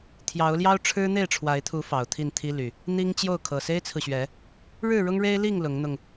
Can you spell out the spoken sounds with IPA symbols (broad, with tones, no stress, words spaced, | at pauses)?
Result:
t̪ʰjɑ˨˦ʊ̯ljɑ˦ʊ̯ ʈ͡ʂʰɻ̩˦n̪e˥˨ɪ̯ʈ͡ʂʰwa˨˦ɪ̯t̪ʰu˨˦ fɑ˨˩ʊ̯t̪ʰi˥˨nt̪ʰi˦ly˨˩ | n̪i˦ŋt͡ɕjo˥˨ʊ̯ kʰɤ˨˩se˦ɪ̯t͡sʰɹ̩˨ɕɥɛ˨˦ | ɻɻ̩˥˨ɻʊ˦ŋɻe˦ɪ̯li˥˨ŋ lʊ˨˦ŋn̪ʊ˧ŋ